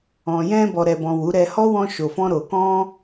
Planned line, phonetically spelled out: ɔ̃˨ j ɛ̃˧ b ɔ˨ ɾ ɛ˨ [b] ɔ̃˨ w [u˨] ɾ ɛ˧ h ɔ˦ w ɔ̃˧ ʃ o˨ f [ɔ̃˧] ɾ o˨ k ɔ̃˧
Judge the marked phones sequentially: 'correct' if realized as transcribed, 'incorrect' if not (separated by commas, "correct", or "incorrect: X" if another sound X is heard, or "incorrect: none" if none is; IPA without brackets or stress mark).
correct, incorrect: u˨˦, correct